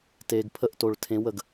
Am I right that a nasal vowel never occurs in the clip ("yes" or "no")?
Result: no